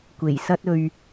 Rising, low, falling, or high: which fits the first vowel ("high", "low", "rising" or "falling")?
low